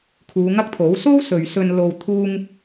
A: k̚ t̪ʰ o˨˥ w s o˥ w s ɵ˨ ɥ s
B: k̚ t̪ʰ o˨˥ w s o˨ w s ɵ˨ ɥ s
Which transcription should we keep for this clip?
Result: A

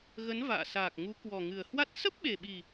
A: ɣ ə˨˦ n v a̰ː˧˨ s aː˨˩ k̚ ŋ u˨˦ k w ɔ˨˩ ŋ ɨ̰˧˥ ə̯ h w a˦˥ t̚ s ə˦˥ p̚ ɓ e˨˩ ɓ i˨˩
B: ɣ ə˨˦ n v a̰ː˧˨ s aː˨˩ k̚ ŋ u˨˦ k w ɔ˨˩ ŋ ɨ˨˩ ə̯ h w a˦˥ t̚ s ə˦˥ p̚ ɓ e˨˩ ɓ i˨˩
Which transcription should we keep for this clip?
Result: B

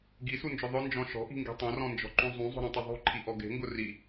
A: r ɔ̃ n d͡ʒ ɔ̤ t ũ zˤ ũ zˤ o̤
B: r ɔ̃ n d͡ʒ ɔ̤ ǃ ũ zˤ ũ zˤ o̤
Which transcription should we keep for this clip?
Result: B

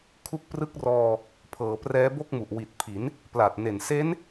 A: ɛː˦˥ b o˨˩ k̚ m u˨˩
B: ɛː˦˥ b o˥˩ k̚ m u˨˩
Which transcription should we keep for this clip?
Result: B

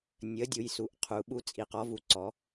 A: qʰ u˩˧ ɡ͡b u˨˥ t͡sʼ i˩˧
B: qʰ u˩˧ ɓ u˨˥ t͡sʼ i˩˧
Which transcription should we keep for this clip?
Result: B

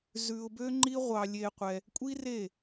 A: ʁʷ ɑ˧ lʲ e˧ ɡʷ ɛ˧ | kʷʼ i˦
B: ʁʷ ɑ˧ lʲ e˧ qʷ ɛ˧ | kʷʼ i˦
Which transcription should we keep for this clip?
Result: B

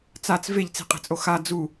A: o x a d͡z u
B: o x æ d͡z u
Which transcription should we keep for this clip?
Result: A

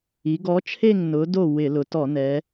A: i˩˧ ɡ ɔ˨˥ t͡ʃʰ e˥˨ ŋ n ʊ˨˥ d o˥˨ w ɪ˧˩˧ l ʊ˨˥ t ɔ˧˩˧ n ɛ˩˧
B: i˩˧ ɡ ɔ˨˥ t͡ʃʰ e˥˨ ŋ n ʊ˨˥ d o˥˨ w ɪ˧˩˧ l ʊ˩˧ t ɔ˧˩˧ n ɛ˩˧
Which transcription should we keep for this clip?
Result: B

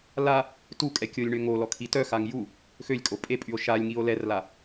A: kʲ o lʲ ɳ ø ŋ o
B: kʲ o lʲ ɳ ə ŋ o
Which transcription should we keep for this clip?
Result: A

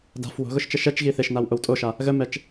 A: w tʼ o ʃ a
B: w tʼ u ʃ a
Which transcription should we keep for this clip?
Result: A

